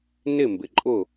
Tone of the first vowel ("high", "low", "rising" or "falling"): falling